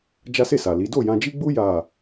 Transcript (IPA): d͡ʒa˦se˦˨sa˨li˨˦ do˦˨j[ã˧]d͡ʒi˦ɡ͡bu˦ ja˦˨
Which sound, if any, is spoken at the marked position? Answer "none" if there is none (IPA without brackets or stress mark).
ã˧